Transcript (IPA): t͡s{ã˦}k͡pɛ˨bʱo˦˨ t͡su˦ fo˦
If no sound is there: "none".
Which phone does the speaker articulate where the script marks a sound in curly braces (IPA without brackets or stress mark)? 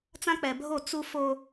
ã˦